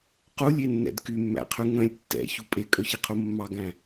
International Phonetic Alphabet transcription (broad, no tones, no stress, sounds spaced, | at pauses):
q u lʲ e nː ɛ̰ d k y mː æ̰ qʰ y ŋ œ̃ lʲ tː ɛ̰ ç u pʼ e kʼ œ ç i qʰ u mː ɑ ɡ æ̃